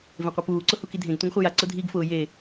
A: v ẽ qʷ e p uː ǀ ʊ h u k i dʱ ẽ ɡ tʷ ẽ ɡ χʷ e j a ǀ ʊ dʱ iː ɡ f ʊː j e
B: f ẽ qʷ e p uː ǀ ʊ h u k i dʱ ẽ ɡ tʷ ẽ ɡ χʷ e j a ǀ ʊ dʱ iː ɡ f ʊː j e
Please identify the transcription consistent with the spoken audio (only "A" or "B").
A